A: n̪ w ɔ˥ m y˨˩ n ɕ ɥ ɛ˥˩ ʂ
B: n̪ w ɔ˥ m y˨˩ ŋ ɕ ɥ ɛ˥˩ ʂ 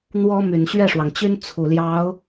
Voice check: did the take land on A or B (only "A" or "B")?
A